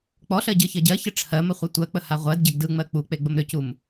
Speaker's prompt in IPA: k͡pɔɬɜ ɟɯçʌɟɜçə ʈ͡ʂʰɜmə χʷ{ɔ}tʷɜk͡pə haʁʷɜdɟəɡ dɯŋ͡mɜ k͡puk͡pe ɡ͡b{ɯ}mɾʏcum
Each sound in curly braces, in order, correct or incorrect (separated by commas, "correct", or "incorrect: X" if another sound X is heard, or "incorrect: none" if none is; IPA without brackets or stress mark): incorrect: ʌ, incorrect: ə